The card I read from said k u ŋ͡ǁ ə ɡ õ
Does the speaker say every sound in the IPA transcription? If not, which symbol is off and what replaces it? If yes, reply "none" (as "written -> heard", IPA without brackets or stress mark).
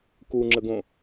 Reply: none